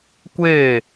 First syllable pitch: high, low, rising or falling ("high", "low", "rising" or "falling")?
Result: falling